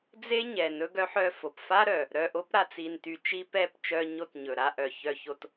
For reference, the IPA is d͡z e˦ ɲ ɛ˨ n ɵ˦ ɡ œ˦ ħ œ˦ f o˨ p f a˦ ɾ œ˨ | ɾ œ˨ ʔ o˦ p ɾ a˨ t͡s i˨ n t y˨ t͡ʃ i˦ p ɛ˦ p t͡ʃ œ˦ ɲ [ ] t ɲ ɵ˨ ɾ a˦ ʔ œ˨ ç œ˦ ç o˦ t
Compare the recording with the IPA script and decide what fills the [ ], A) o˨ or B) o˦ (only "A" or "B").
B